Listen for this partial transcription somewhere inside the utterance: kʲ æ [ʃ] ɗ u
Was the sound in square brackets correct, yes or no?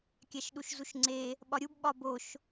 yes